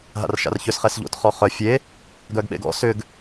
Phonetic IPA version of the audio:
ɦ a̰ r ʃ a̰ r ç ʏ s χ ɛ s ʎ o̰ t χ ɔ χ œ fʲ e | ɡ œ ɡ ɓ ḛ ɡ ɔ̰ s ʏ ɡ

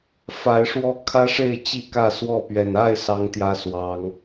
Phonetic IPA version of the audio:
f a˨˦ ɪ̯ ʂ w ɔ˦ kʰ ä˦ ʂ e˥˨ ɪ̯ t͡ɕ i˥˨ k ä˥˨ s w ɔ˥˨ p ɥ ɛ˨˩ n a˥˨ ɪ̯ s ɑ˦ ŋ t̪ j ä˦ s w ɑ˨˦ ŋ

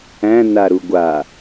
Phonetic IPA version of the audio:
æ̃ n a ɾ u ɡʷ a

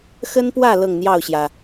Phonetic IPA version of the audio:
x ə˦ n p w ä˥˨ l ɤ˥˨ ŋ n̪ j ɑ˥˨ ʊ̯ ɕ j ä˩

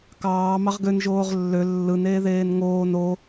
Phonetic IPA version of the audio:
k ɑː m ɑ ʁ ɡ ø n ʒ oː ʁ lː ø lː ɯ n eː ð eː n ŋ oː n o

